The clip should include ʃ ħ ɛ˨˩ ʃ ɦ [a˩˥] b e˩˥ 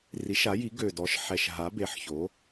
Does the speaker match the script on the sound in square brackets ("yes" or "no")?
yes